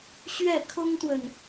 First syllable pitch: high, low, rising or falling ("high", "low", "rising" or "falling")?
falling